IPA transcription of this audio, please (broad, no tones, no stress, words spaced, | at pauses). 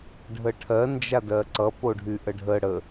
ɖʱəʈʰɜ nd͡ʒadɜǀʌ poɖʱyʔəɖʱə ɽə